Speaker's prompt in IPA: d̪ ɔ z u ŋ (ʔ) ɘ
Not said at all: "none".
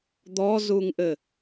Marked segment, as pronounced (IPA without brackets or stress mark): ʔ